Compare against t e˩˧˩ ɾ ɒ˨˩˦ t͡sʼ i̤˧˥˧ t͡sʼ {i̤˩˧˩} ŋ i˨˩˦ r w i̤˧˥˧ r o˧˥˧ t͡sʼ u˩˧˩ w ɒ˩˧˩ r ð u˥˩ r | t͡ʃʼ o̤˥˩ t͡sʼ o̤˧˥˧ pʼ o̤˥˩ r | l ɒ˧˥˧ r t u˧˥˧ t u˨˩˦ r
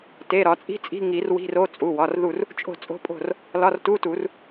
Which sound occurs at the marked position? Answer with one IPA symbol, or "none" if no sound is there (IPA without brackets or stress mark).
i̤˧˥˧